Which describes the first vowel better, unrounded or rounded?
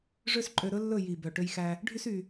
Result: rounded